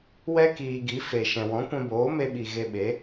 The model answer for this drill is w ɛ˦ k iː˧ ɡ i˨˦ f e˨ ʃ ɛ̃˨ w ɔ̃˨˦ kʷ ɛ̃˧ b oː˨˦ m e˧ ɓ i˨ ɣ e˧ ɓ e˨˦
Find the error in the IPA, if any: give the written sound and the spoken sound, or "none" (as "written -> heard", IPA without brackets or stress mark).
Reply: none